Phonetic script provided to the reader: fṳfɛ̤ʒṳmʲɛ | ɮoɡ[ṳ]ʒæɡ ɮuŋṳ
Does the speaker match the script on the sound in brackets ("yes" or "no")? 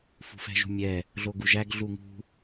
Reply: no